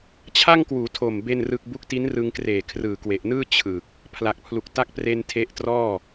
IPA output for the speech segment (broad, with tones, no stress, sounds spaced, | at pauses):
t͡ɕʰ a˥˩ ŋ k w uː˩˦ tʰ o˨˩ m b e˥˩ n r ɯ˥˩ k̚ b u˦˥ k̚ t i˦˥ n r ɯ˧ ŋ k r eː˨˩ kʰ r ɯː˨˩ k w e˨˩ ʔ n ɯː˥˩ t͡ɕʰ ɯ˨˩ k̚ | pʰ l a˨˩ k̚ pʰ l u˨˩ k̚ t a˦˥ k̚ p r e˧ n tʰ e˦˥ ʔ t r ɔː˥˩